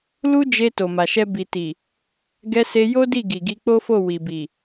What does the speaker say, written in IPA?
l u˦ d͡ʒ e˧ t o˨ m a˨ ʃ ɛ˧ b i˨ t i˨ | ɡ ɛ˧ s e˧ j o˦ d i˦˨ ɡ i˨ ɡ i˧ k͡p o˦ f o˦˨ w i˨ b i˨

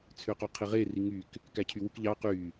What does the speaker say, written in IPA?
t͡sʰ ø q o qʰ i ʁ e r i ŋ y k | k æ cʰ y w u k ʎ ɑ q y

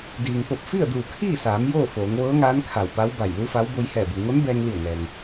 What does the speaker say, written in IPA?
d iː˩ ŋ p o˧˩ p̚ f i˥˨ ə̯ d uː˧˩ kʰ iː˥˨ s aː˩˧ m j oː˥˨ f oː˩˧ ŋ ʋ ɤː˧˥ ŋ aː˧˥ n kʰ a˧˩ w p a˧˥ w b a˧˩ j l u˧˥ f a˧˥ w b o˧ j h ɛː˧˩ b u˩ ŋ o˧˥ n b ɛː˧ ŋ l i˧˩ ə̯ ŋ ɛː˩ ŋ

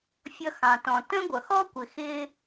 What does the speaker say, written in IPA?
fʲ ʌ˧ x ɑ̃˩ t ɔ̃˩ t ə̃˥ ɡʷ ʌ˩ x ɔ˥ kʷ ɪ˩ x ɪ˧

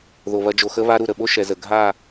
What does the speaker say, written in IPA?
ð o˨ β ɐ˧ d͡ʒ o˨ x ə˦ β a˦ ɾ u˨ ɾ ə˨ ɓ o˦ ʃ ɛ˨ z ə˨ ɡʱ a˦˨

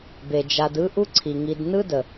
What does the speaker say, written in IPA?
b e˩ d͡ʒ a˨ d ɯ˥ ʔ u˥ ǀʰ i˩ ŋ i˨ d n ɯ˥ d ə˩

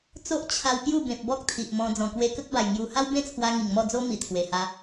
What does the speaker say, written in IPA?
t͡s o˦ ʔ t͡ɕʰ a˧ w p j u˥˧ b ẽ˨ p̚ b ɔ˦ k̚ t̪ʰ i˨ ʔ m ɔ̃˧ d͡z ɔ̃˨˩ k w e˧ k ə˦ k̚ b a˨˩ j ŋ j u˧ h a˦ w b ẽ˦ t͡sʰ w a˧ ŋ i˨˩ ŋ m ɔ˥˧ d͡z o˦ m i˨˩ t̪ʰ w e˨˩ h a˧

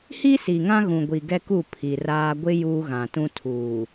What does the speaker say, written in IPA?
h i˦ s i˨ ŋ ã˦ ɣ ũ˨ ɡʷ i˨ ɡ ɛ˦ k u˦˨ pʰ i˨ r aː˦ ɡʷ ɪ˦ j uː˦ ɣ ã˨ t ũ˦ tʰ uː˨

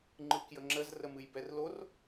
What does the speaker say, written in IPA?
ŋ͡ǃ ɯ k j ə ŋ͡ǁ ə z r ə m ɨ j b ɛ r l o r

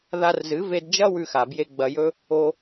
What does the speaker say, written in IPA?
ð a˧ r z ɨ˨˦ v e˧ d d͡ʒ ɐ˦ w ʉ˧ x a˨ b j e˧ ɡ͡b ɐ˧ j ɵ˦ | o˦

